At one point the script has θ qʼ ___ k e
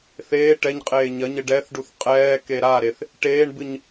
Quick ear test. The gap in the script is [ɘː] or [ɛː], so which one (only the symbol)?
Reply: ɛː